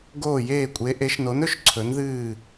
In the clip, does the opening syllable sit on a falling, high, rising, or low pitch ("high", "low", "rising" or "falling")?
falling